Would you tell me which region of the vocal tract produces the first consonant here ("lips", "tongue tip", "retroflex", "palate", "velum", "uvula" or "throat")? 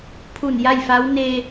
lips